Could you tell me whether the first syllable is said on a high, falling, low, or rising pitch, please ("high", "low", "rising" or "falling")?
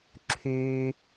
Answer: low